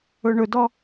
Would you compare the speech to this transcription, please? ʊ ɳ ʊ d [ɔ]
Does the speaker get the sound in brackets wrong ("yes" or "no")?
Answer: no